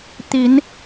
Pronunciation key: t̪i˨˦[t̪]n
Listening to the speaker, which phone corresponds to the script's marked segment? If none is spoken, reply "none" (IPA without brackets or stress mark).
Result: none